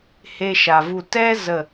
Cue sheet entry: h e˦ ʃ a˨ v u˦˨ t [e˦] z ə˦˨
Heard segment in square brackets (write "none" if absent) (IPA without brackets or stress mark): ɛ˦